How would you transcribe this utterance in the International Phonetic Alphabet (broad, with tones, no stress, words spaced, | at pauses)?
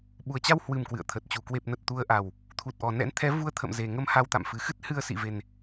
ɓu˨˩ə̯t͡ɕa˧whwɨ˨˩m kwɨ̰˧˨ə̯t̪ʰə˨˩t̚t͡ɕu˨˩ kwe˨˩p̚nə˨˩t̚ t̪u˨˦ə̯ʔa˨˩w | t̪ʰu˨˩t̚ʔɔ˨˩nɛ̰˧˥n t̪ʰɛ˨˦vu˧ə̯ t̪ʰə̰˧˨mze˨˩ŋə˧m ha˧wt̪a̰˧˨m fɨ˨˩xɨ˦˥t̚hɨ˧ə̯ sḭ˧˨ve˨˩n